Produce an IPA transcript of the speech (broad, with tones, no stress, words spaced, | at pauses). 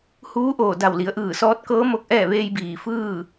huː˧˥ʔoː˧˩da˧˩wli˩˧ə̯ ʔɯː˧˩sɔː˧˥t̚kɤː˧˥ mo˧k̚ʔɛː˥˨ ʋeː˧jbiː˩ fɯː˥˨